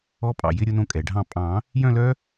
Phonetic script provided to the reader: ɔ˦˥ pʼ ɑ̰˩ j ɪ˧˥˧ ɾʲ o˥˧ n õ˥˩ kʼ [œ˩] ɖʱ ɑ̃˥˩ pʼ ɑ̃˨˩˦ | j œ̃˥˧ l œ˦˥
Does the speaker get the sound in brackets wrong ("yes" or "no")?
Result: yes